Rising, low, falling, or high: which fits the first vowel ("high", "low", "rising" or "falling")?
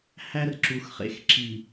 high